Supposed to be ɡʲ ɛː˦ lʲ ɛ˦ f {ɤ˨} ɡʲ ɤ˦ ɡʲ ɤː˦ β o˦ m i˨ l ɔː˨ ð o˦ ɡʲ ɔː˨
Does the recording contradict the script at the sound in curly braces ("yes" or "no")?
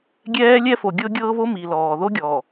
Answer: yes